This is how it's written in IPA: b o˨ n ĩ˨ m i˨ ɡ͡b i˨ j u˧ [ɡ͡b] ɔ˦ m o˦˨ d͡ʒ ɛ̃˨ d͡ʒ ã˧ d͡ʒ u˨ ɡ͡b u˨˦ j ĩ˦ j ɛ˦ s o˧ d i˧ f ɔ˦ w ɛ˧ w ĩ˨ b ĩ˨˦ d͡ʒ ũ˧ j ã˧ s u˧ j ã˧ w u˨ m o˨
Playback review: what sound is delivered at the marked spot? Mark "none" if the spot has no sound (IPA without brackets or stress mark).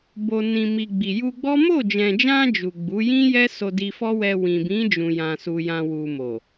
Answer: ɡ͡b